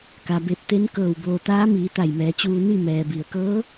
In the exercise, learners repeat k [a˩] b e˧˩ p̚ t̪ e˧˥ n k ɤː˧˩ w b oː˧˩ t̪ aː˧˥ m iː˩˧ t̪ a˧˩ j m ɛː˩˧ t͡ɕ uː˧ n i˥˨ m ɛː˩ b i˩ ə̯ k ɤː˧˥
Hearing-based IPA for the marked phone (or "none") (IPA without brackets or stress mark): a˩